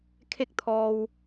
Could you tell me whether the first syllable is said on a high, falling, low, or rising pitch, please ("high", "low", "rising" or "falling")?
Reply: falling